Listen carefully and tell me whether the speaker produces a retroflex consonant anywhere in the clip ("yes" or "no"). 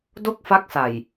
no